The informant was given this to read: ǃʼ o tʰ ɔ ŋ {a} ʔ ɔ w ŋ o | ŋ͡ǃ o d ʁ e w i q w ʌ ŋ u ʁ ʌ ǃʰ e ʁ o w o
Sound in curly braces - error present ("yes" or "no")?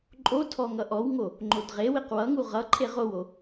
yes